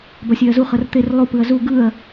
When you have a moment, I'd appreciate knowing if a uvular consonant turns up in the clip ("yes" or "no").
yes